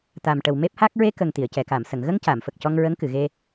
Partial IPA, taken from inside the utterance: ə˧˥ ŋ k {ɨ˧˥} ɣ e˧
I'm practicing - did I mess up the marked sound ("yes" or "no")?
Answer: yes